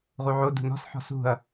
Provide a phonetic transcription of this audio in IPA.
ʁ u ʕ o d ṳ n ɔ̤ s ħ ɔ̤ s ṳ ɐ̯

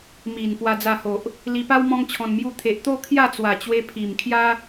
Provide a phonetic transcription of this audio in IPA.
m i˨˩ n p w a˧ d͡z a˧ h o˨ ʔ | l i˧ p a˦ w m ɔ̃˦ ŋ t͡ɕʰ ɔ̃˧ n m j u˥˧ t̪ʰ e˨ ʔ t̪ o˥˧ kʰ j a˥˧ t͡s w a˨˩ t͡ɕ w e˧ pʰ i˨˩ m kʰ j a˦

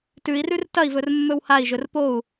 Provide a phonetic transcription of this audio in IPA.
t ʉ i̯ r ʉ r t ɐ i̯ v ɵ r mː ɵ w h a i̯ ʒ ɵ r p o u̯

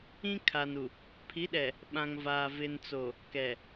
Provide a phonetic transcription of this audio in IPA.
ĩ˦ kʰ a˨ n u˨ | pʰ i˨˦ ɗ ɛ˨ | ɓ ã˨ ŋ v aː˨ v ɪ˨ n t͡s o˨ | k ɛ˨

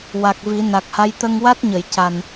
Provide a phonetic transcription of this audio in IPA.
w a˨˩ k̚ v i˨˩˦ n a˨˩ k̚ h a˧˥ j t̪ ə˧ ŋ w a˦˥ t̚ ɲ ə˨˩˨ j c a˨˩ n

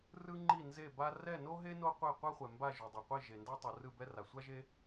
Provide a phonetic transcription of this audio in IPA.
r ɯ˥ ŋ͡ǃ i˥˩ n z e˥˩ b a˥ r ɛ˥˩ n o˥ ɦ e˥ n o˥ qʷ e˥˩ qʷ ɛ˥ χʷ ɛ˩ m b a˥˩ ʒ u˩ dˤ o˩ qʷ i˥˩ ʒ e˩ n d a˥ tˤ ɯ˩ r ɯ˥˩ b ɛ˥ r a˩ sʷ a˥ ʒ e˥

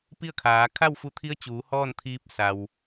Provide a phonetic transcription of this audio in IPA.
p i˥˨ ə̯ kʰ aː˩˧ kʰ a˥˨ w f u˧ t̪ʰ i˧˥ ə̯ t͡ɕ uː˩˧ h ɔː˥˨ n t̪ʰ iː˧ p̚ s a˩ w

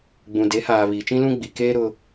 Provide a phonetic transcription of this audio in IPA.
ɡ͡b ũ˨ d e˨˦ h aː˨ β iː˨ t͡ʃ ĩ˦ l ũ˦ ɡ͡b i˨ k eː˦ ɾ ʊ˦

